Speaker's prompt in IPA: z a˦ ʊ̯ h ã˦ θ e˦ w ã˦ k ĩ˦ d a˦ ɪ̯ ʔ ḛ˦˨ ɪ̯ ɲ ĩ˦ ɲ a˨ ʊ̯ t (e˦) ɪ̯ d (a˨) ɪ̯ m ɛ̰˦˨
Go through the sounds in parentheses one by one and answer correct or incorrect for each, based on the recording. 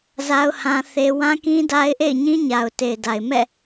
incorrect: e˨, correct

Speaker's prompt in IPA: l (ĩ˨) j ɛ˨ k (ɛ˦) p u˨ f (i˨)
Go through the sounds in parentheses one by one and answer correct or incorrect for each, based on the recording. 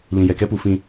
correct, correct, incorrect: ĩ˨

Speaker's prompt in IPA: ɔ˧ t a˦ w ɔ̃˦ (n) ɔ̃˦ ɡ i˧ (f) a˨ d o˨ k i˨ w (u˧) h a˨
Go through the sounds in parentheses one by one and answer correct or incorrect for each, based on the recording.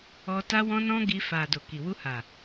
correct, correct, correct

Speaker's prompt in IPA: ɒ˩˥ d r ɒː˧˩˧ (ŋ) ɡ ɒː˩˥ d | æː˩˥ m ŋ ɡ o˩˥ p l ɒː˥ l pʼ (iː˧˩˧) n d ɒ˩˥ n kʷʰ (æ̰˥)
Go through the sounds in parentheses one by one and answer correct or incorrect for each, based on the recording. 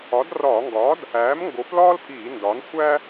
correct, correct, incorrect: æ˥

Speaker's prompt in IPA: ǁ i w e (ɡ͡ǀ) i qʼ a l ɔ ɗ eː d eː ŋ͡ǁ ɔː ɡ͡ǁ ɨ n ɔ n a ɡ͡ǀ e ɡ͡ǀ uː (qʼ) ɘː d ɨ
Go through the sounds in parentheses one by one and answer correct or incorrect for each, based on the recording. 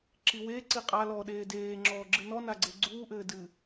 incorrect: ǀ, incorrect: ʔ

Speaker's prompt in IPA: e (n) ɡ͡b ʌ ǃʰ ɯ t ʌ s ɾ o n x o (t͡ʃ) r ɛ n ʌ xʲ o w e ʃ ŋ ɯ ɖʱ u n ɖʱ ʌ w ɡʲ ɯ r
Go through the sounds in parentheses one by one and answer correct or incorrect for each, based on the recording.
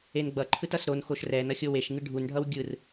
correct, incorrect: ʃ

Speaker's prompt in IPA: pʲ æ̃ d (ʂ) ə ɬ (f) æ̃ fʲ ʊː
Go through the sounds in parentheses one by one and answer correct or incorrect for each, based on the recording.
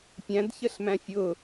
incorrect: ç, incorrect: m

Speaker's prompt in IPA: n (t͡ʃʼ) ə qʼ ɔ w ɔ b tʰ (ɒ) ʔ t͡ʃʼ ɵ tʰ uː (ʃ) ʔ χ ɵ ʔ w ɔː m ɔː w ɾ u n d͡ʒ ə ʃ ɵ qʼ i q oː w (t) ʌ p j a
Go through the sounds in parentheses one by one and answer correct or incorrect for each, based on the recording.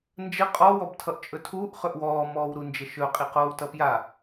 incorrect: d͡ʒ, incorrect: ʌ, incorrect: none, correct

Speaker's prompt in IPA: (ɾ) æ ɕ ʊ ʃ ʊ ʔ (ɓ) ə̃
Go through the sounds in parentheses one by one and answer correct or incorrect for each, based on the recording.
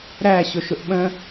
correct, correct

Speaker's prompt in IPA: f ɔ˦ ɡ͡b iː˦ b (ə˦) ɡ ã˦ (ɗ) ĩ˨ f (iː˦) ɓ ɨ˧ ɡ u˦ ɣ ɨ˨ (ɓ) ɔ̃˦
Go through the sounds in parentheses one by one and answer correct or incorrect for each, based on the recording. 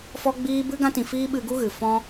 incorrect: ɨ˦, incorrect: t, correct, incorrect: f

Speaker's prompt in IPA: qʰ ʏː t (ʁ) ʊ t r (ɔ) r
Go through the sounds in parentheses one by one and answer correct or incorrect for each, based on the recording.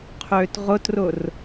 correct, incorrect: ʊ

